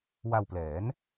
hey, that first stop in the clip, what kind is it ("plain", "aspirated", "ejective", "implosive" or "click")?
plain